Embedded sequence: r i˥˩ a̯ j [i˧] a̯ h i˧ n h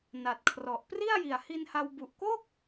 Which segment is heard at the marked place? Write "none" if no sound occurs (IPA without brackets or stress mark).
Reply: i˨˩